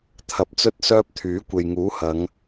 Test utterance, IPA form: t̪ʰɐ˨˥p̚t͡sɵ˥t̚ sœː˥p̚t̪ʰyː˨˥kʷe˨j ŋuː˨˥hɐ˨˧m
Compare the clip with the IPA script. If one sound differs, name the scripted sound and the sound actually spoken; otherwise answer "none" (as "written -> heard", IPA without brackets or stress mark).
m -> ŋ